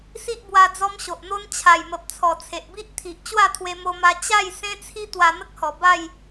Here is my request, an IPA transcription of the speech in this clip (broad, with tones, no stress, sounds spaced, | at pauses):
s i˦ ʔ b w a˧ d͡z ɔ˦ m ɕ o˨ ʔ n̪ o˦ n t͡ɕʰ a˨˩ j m ə˨ p̚ t͡sʰ ɔ˨˩ t͡sʰ e˨ ʔ b i˦ ʔ t̪ʰ i˨ ʔ t͡ɕ w a˥˧ t̪ʰ w e˧ m o˧ m a˧ t͡ɕ a˥˧ j s ẽ˦ t͡sʰ i˦ t̪ w a˧ n̪ ə˦ k̚ h ɔ˨˩ b a˥˧ j